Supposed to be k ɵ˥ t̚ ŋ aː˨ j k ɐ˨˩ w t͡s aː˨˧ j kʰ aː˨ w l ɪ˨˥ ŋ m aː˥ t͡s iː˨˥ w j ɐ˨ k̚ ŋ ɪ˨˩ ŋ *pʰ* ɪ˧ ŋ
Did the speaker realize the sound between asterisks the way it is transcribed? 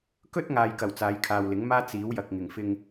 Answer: no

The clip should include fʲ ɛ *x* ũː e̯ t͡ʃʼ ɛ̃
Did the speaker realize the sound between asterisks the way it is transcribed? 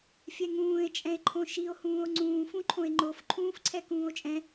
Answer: no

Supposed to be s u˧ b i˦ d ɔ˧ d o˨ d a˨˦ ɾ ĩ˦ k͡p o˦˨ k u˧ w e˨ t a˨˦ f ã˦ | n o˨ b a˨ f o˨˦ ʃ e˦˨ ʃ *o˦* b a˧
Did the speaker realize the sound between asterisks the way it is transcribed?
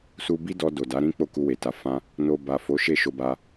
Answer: no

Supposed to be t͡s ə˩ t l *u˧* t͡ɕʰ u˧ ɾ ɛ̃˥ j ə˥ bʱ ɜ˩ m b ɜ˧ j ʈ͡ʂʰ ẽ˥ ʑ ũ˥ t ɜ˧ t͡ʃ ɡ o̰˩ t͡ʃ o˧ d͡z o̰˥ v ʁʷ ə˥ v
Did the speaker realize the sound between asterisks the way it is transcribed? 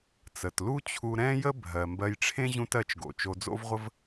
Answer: no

